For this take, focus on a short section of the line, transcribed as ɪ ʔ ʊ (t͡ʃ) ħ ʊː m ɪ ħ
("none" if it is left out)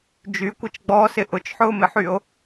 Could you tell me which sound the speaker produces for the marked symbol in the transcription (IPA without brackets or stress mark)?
t͡ʃ